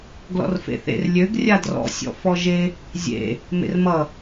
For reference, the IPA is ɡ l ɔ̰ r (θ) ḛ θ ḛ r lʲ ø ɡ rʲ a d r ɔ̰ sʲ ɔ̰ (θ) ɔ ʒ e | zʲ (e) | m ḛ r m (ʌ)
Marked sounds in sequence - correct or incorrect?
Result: incorrect: f, incorrect: f, incorrect: ḛ, correct

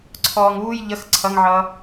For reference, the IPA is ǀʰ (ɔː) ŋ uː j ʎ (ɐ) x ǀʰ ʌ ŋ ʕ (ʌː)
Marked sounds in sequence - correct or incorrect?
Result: correct, incorrect: ə, correct

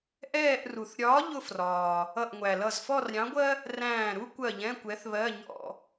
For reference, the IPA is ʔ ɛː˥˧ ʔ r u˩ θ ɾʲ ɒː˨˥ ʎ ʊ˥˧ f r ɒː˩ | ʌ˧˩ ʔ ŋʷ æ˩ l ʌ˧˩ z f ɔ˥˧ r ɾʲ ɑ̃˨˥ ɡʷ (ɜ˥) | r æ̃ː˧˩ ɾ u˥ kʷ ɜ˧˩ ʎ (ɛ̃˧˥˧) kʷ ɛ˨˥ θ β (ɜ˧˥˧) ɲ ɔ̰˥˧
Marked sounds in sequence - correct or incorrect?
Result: correct, correct, correct

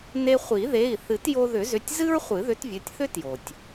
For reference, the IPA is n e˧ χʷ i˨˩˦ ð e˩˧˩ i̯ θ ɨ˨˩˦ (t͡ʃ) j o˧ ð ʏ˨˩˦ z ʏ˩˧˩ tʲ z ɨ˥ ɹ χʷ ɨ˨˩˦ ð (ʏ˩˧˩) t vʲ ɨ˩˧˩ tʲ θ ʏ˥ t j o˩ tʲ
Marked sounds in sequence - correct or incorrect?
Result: incorrect: t, incorrect: ʏ˨˥

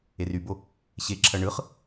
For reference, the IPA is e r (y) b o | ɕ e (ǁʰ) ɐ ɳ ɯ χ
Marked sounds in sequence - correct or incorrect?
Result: correct, correct

